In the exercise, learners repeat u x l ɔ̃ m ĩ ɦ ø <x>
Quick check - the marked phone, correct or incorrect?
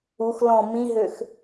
correct